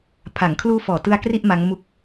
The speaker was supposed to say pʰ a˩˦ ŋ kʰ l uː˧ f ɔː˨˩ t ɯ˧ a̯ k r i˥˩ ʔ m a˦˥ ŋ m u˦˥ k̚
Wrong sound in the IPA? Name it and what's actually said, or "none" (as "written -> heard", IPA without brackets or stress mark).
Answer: none